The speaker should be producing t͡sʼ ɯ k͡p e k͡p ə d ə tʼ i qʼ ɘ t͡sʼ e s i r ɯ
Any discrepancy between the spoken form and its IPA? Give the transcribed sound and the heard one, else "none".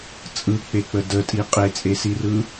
ɘ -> e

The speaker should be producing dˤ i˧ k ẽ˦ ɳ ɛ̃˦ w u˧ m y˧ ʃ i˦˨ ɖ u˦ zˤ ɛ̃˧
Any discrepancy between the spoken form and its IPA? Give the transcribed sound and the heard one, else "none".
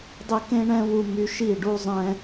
none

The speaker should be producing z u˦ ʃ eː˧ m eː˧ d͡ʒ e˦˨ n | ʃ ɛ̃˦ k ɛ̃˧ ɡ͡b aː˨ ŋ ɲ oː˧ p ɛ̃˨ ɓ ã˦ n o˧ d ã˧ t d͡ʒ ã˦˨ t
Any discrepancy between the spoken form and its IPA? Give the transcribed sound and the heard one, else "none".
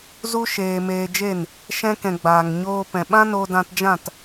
none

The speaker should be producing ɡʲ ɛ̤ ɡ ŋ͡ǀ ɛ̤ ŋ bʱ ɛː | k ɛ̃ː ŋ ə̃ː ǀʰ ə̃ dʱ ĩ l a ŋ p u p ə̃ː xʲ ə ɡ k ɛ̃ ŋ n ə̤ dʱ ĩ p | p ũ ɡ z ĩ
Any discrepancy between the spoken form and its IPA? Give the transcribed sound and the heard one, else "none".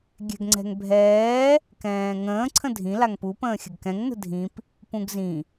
none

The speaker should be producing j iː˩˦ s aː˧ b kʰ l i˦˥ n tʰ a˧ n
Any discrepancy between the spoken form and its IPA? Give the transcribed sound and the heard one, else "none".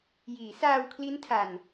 b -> w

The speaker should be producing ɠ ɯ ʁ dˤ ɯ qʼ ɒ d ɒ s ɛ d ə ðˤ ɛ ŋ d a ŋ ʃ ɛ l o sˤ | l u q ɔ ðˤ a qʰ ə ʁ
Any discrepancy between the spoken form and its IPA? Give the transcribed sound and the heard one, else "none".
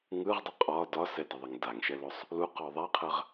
ɠ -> ŋ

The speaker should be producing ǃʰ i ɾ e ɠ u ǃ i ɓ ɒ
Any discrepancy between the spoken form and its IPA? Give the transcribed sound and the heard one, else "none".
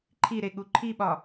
ǃ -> ǃʰ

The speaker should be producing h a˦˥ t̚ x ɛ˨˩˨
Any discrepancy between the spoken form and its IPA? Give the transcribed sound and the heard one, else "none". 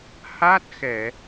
none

